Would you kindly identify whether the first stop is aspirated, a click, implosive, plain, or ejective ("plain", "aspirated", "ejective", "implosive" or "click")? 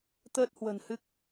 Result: plain